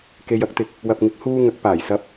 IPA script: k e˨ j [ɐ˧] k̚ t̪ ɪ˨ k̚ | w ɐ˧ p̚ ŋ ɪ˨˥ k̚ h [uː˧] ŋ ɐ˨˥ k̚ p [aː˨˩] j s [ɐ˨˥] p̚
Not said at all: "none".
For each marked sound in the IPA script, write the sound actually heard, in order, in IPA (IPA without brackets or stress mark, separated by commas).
ɐ˧, uː˧, aː˨˩, ɐ˨˥